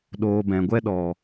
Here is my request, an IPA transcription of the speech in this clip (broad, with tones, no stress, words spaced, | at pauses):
ɗoː˨bɛ̃˨ɡʷɛ˧ ɗɔ˨